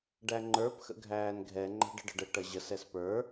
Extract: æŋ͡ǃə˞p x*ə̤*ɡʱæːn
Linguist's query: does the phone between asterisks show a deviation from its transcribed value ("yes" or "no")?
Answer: yes